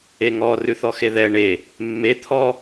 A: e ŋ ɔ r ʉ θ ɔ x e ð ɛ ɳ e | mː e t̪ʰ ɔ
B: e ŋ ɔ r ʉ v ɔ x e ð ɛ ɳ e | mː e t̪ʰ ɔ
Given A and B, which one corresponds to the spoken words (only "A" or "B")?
A